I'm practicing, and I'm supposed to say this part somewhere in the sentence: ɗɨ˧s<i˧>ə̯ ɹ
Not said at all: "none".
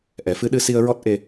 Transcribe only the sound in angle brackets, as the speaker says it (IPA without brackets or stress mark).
i˧